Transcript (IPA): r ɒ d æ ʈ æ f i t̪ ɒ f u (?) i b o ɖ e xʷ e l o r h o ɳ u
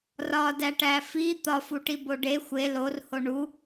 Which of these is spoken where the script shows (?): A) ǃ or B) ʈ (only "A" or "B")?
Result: B